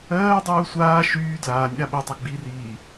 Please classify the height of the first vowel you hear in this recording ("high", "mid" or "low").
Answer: mid